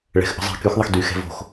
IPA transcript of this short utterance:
ɭɛ̤x ʔə̤zˤi̤ kyx ðˤəxdy xɛ̤vo̤x

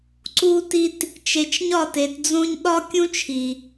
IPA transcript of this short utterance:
ǀu˦ti˦t | t͡ʃe˨t͡ʃɲɒ˦˨te˨td͡zõ˦ɲ ɗɒ˦kʲũ˦t͡ʃʰi˨

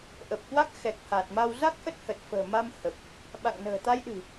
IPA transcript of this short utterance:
ʔəː˨˩p̚ kwa˦˥k̚ xɛ˨˩k̚ haː˨˩t̚ma˧w za˦˥k̚ʔə˦˥t̚hə˨˩t̚ fə̤ː˨˩ma˧m hə˨˩p̚ | ɓa̰˧˨ŋnə̤ː˨˩t̪a˧jɗɨ̤˨˩

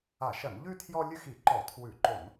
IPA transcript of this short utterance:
a˧˩˧ʃɐ˧˩˧nʎʉ˥ tʰjɔ˥ lʲʉ˥xi˧˩˧ǃɔ˧˩˧ tʰwʉ˧˩˧ǃo˧˩˧n

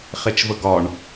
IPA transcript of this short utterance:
χet͡ʃvəɡɒɳ

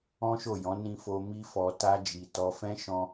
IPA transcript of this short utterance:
ɔ̃˦ʃo˦˨jɔ̃˨˦ nĩ˧ fo˦ mi˦fɔ˧ ta˦d͡ʒi˧ tɔ˧fɛ̃˦ ʃɔ̃˧

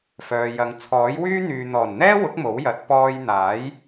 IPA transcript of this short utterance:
fœː˨jɐ˨˧ŋ t͡sʰɔː˨˥jwyː˥n̪yː˨ n̪ɔː˨˩nn̪ɛː˥wʊ˨˥k̚ mo˨˥wjɐ˨˥t̚ pɔː˧jn̪aː˨˥j

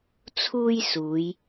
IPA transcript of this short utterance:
t͡sʰuː˥jsuː˨˧j

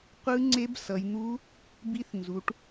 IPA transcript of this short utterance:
qʷɯ˧˥ ŋ͡ǀe˧˥bsʌ˩˧jn̪u˧˥ | bi˧˥θ nzu˩˧ʈ

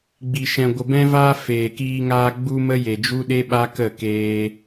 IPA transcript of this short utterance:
ɡ͡bi˨ʃɛ̃˨ ɡʷə˨bɛ̃˧vaː˧ feː˨kiː˧ŋaː˧ ɡ͡bu˧ mə˦je˨d͡ʒu˦ɗe˦ ɓa˦kə˦˨ keː˧

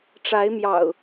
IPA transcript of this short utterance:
ʈ͡ʂa˨˦ɪ̯mjɑ̰˨˩ʊ̯

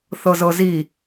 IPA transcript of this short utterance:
θɤzɤzi

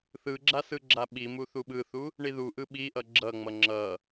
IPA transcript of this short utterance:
θɯɡ͡ǁa sɯɡ͡ǁaɓimu θuɓɯθu | ɳiðuʔɯ ɓiʔʌ ɡ͡ǁʌŋ͡mʌ ŋ͡ǁʌ

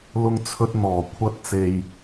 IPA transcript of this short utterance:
lʊ˥ŋt͡sʰɵ˥t̚n̪ɔː˨˩ kʷʰɐ˥t̚t͡se˧j

